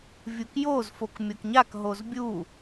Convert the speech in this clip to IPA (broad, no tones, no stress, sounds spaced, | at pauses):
vʲ u k j o z f o k mʲ o k ɲ a k ɦ o z bʲ u